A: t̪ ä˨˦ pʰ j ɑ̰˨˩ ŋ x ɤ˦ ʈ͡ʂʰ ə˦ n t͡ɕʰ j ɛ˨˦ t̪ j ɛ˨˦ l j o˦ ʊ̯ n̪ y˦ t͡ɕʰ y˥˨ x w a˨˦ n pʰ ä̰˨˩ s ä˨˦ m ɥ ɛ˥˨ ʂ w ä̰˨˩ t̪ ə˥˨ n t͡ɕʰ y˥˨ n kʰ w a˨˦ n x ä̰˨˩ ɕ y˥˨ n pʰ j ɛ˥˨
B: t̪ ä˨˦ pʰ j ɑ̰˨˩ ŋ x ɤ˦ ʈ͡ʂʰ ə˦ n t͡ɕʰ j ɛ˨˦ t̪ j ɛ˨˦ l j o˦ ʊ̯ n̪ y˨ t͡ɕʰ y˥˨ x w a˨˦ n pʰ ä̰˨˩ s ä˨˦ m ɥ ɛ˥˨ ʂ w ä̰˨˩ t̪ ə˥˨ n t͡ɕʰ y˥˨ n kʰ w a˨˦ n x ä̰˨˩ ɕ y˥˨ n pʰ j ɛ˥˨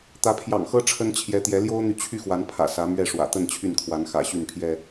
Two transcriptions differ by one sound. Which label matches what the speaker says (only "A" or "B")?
B